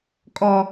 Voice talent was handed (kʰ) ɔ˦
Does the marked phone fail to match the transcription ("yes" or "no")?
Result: yes